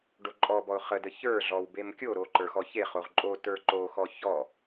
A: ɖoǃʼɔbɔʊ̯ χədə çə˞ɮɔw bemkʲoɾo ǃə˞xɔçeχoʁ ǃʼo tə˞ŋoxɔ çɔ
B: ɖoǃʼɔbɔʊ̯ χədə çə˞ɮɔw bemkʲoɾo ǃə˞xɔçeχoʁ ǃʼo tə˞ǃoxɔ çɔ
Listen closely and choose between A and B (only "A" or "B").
B